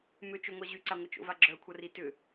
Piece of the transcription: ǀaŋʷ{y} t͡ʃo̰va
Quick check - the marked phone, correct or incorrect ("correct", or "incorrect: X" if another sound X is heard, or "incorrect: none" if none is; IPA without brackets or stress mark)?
incorrect: ɪ